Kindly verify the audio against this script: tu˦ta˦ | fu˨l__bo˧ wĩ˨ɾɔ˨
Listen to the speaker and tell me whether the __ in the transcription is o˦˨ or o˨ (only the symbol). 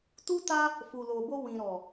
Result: o˨